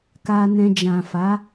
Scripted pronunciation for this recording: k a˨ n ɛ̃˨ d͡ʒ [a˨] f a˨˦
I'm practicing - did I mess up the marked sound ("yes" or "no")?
yes